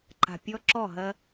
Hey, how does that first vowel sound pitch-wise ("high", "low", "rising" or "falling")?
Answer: low